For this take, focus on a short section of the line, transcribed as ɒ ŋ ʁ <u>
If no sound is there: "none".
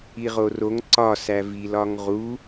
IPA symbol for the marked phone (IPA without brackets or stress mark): u